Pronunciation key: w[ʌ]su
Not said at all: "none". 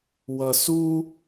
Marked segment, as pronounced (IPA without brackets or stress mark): ʌ